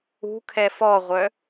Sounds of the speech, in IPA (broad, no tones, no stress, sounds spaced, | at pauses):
ṳ kʰ ɛ f ɔ ʁʷ œ